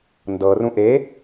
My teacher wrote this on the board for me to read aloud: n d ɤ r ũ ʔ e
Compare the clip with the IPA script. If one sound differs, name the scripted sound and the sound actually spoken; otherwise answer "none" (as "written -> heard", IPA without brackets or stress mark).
none